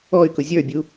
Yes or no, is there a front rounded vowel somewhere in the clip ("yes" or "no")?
yes